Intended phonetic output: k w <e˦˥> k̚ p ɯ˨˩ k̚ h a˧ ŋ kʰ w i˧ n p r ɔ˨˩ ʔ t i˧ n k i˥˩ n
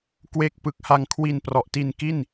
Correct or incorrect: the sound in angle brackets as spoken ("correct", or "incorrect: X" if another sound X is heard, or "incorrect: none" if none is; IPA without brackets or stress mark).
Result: correct